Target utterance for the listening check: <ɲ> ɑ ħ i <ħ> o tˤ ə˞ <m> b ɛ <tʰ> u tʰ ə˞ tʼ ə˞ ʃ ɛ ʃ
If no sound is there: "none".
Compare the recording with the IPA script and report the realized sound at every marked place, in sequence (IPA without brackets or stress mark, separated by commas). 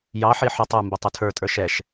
j, ħ, m, tˤ